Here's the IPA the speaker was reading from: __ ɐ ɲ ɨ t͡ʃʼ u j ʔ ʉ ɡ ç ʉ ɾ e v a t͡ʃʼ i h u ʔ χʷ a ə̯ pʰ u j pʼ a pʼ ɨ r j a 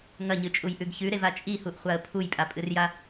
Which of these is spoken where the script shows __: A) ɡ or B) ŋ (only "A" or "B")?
B